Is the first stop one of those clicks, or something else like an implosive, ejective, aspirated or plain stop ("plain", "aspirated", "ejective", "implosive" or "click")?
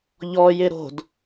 plain